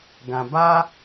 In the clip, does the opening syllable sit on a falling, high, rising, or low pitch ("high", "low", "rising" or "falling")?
low